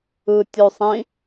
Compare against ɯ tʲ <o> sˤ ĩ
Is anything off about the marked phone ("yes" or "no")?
no